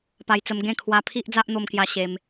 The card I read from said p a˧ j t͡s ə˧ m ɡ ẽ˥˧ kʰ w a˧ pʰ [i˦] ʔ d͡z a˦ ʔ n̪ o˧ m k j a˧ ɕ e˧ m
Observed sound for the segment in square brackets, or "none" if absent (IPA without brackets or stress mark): i˦